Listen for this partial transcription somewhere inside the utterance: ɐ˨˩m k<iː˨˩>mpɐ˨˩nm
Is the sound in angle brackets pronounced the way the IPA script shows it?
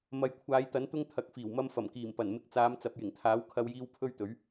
yes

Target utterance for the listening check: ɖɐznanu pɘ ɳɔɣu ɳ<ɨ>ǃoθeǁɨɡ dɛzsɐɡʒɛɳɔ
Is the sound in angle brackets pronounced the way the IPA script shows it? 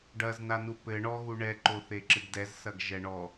no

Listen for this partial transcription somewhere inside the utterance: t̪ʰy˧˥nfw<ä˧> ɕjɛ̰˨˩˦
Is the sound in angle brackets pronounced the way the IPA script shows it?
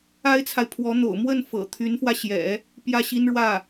yes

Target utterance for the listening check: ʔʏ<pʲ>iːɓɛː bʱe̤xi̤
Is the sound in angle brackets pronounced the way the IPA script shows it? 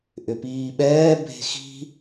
no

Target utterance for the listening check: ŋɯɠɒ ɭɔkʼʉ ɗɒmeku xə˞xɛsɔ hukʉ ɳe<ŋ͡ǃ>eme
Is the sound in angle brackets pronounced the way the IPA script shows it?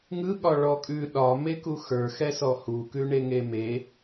no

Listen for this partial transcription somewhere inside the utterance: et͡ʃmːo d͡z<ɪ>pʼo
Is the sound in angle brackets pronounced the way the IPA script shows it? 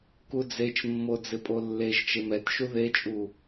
yes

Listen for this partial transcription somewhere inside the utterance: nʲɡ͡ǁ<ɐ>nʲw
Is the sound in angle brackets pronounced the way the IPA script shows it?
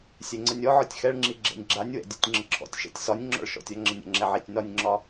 no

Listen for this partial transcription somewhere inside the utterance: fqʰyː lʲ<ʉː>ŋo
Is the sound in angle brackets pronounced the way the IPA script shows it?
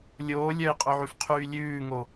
yes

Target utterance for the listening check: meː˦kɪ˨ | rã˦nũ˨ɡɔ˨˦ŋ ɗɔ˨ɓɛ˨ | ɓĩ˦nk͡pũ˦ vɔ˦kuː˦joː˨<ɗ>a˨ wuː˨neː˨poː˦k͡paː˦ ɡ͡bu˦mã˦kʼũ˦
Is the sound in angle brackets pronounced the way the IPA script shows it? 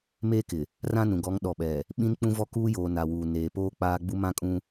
no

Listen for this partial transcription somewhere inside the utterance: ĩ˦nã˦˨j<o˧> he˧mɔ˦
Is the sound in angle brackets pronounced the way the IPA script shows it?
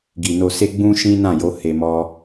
no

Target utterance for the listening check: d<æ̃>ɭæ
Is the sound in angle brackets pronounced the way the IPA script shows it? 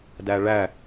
no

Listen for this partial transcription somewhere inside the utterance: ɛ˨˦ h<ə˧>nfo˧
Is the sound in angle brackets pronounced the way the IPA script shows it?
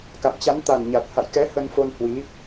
yes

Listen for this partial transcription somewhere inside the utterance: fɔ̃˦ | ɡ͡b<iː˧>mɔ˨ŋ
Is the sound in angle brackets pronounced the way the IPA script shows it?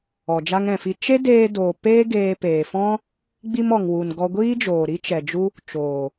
no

